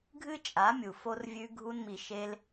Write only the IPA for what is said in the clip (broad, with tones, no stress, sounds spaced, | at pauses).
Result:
ɡʱ ɨ˦ t͡ʃʼ a˨˦ mʲ u˨ f o˧ r vʲ ʉ˧ ɡʱ u˧ n m i˨ ʃ e˧ l